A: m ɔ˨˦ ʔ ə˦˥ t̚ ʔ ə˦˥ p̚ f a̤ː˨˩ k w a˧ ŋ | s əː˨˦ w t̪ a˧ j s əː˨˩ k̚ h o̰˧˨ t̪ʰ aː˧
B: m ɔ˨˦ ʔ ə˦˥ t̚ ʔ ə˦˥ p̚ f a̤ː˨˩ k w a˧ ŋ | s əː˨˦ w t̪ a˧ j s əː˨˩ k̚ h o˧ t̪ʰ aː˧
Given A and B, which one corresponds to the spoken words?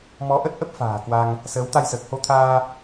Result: B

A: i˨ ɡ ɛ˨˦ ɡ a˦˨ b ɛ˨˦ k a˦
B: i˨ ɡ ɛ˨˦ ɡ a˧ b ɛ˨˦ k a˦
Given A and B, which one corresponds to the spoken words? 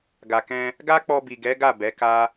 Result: A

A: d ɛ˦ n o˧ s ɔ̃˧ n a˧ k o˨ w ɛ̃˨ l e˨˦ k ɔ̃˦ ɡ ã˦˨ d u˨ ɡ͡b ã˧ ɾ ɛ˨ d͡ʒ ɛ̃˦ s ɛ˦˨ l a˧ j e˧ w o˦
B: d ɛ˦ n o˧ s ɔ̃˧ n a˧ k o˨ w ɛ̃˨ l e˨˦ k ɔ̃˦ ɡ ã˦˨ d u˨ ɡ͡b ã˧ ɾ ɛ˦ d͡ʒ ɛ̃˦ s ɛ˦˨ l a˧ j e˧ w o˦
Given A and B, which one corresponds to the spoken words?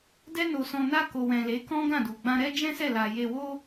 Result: B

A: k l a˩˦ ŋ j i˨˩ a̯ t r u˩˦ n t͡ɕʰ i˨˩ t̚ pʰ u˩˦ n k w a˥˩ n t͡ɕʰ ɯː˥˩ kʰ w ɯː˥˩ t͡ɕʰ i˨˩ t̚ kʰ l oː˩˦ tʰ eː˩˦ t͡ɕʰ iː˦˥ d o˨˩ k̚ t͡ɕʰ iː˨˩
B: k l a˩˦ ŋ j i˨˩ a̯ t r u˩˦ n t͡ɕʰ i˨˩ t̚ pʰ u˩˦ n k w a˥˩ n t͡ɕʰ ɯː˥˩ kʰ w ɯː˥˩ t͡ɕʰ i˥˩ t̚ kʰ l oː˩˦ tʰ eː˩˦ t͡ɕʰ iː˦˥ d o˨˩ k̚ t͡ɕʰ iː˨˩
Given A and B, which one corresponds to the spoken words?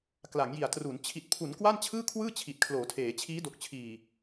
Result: A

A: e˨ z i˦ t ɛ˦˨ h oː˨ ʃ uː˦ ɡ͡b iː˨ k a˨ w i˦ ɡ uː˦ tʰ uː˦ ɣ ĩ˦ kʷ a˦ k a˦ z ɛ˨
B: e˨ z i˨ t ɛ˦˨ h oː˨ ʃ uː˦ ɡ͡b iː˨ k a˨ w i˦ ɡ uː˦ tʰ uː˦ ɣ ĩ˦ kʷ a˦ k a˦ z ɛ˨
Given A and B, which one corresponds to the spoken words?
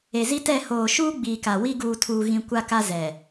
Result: A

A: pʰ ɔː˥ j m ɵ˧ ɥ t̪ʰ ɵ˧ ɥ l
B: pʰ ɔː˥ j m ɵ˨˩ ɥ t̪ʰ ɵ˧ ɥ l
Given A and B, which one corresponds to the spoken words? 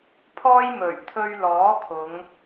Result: B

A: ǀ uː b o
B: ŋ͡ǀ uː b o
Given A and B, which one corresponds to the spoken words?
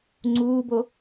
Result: B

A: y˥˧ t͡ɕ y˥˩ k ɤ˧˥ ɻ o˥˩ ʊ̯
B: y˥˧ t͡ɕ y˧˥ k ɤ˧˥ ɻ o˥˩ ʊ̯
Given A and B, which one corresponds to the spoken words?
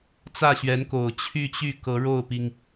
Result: A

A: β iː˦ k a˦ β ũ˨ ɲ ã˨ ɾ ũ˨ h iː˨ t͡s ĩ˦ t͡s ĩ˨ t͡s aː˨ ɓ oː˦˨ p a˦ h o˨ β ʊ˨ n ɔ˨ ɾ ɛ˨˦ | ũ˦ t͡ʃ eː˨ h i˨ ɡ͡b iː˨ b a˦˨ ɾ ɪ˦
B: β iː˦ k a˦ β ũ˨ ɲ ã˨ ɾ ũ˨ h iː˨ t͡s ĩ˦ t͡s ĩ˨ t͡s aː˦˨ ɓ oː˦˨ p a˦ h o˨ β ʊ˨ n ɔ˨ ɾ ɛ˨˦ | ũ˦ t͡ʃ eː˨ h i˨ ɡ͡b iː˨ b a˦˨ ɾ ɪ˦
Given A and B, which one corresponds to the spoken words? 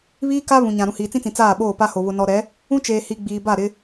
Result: B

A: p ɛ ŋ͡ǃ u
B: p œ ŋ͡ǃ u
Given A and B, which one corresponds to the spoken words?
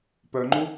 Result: B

